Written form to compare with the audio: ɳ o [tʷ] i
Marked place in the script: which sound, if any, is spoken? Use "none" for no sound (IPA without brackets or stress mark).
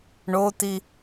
t̪